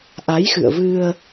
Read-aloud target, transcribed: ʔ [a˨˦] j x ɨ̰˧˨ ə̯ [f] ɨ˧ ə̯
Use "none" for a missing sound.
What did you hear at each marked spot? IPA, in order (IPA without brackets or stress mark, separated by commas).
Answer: a˨˦, v